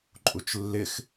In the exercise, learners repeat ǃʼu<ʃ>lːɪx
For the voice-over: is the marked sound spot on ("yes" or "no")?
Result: no